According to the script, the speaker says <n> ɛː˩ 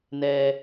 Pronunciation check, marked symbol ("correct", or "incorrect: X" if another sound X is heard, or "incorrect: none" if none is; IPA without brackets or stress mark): correct